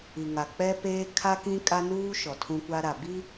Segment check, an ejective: present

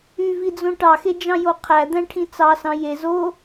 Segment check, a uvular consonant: present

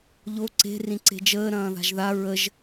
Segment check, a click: present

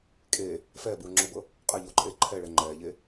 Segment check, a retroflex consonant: present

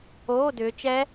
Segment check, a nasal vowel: absent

